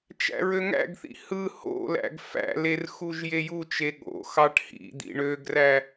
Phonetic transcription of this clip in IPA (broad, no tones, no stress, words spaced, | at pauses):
t͡ʃæ̰ɹøŋæ̰ɡθḭ hɯ ho̰læ̰ɡ fæ̰ler xuʒjejut͡ʃe ɠo̰xɑʈ hḭd̪ḭ ɳøɡræ